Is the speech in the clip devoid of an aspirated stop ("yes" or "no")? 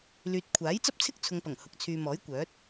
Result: no